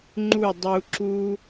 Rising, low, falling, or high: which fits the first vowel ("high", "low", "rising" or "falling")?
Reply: falling